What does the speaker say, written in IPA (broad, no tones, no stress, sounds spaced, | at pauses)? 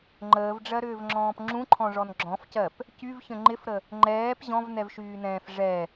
ŋ͡ǃ əː v ɖ͡ʐ ɜ ɾ ʏː v ŋ͡ǁ ɔ̃ː p ŋ͡ǁ ũ ǃʰ ɔ̃ ʐ ɔ n ɡ͡ǁ ɔ̃ f c ɜ p | c y v ç ə̃ ŋ͡ǃ ɪ f ɾ ə | ŋ͡ǃ ɛː p ʑ ɔ̃ v n ɛ v ʃ yː n ɛ̃ː f ʐ ɛ